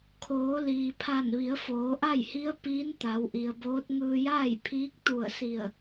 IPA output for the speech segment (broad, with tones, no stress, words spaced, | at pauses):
kʰoː˩˧liː˩pʰa˧˩n ʋi˩˧ə̯foː˩˧ʔa˥˨jhi˧˥ə̯ piː˧˥n t̪a˩˧wʔi˩ə̯boː˧˥t̚ ŋɯː˧jaː˥˨jpʰiː˧˥k̚ t̪u˧˩ə̯ si˧˩ə̯